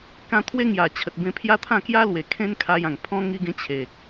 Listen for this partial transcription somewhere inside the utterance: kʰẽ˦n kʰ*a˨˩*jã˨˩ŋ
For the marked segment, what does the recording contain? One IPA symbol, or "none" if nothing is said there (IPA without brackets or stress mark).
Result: a˧